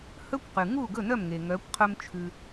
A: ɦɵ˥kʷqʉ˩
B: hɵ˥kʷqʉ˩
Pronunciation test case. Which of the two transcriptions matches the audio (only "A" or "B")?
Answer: B